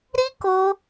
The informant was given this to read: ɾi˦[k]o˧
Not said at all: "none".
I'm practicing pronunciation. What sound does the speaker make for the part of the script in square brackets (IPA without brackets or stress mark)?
k